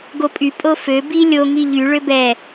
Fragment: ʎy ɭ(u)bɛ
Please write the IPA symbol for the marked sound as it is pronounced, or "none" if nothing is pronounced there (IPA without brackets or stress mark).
ø